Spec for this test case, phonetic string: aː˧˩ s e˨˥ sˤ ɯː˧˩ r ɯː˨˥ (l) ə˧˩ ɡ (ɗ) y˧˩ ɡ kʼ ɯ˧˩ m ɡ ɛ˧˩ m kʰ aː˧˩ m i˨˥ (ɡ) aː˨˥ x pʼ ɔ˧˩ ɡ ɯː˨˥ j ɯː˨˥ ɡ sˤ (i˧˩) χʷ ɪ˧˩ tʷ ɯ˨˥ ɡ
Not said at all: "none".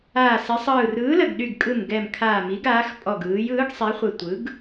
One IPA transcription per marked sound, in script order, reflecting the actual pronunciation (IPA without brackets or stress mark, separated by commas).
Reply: l, ɗ, ɡ, i˨˥